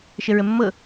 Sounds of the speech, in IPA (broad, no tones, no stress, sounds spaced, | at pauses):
ʃ ə ɹ ə mː ɤ